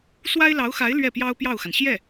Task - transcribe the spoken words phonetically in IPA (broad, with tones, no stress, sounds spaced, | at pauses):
s w a˥ ɪ̯ l ɑ˧˥ ʊ̯ x a˧˥ ɪ̯ l ɥ ɛ˥˩ p j ɑ˥ ʊ̯ p j ɑ˥˩ ʊ̯ x a˩ n ɕ j ɛ˥˩